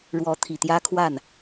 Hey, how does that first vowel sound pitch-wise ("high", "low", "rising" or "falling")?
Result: rising